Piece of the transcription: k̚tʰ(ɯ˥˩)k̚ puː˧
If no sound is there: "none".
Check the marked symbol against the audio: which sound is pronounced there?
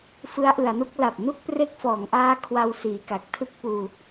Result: ɯ˥˩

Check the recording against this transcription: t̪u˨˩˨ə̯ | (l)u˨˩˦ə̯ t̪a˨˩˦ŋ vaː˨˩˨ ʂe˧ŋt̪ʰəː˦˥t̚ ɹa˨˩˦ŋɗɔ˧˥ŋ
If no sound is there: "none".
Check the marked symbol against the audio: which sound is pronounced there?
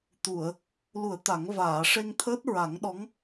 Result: l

